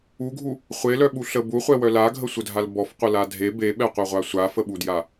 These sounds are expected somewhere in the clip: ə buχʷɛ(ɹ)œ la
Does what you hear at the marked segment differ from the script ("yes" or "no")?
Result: yes